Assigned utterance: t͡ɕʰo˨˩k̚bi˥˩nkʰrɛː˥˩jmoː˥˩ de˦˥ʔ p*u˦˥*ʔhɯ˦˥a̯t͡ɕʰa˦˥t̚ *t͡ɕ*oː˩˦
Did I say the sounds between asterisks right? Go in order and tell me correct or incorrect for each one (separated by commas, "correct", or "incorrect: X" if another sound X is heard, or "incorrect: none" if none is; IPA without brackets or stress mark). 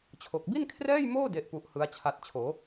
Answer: correct, incorrect: t͡ɕʰ